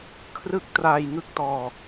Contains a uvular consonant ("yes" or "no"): no